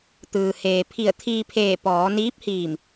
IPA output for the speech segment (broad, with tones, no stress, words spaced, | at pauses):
t̪ɯː˩heː˩ pʰi˧˩ə̯ t̪ʰiː˧pʰeː˧˩ pɔː˩˧niː˧˥p̚hiː˧˩m